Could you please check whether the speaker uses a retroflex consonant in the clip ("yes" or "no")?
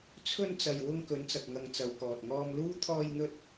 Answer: no